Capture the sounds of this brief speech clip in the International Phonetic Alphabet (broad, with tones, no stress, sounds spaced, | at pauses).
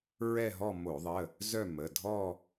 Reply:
ɹ ɛ˥˧ ɦ ɔ˥˧ m o˧˩˧ ðˤ ə˩˧˩ | z œ˥˧ m ə˩˧˩ dʱ ɔ˥˧